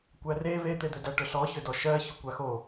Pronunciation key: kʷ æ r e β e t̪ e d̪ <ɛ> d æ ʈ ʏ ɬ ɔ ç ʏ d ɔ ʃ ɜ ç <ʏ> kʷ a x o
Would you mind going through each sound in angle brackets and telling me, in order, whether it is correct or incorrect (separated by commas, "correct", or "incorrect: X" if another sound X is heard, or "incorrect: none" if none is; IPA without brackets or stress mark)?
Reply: incorrect: ʏ, correct